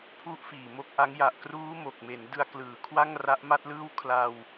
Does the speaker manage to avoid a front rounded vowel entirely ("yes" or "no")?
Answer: yes